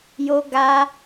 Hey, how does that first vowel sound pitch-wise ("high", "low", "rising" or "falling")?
high